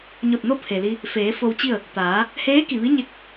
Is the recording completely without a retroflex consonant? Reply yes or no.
yes